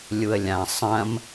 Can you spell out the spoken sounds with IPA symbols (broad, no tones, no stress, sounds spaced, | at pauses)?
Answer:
lʲ u ə̯ lʲ ã sˤ ɐ̃ m